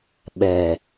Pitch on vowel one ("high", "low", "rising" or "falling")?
low